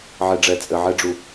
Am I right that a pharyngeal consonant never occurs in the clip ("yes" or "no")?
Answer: no